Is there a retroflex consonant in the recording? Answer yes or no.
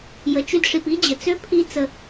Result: yes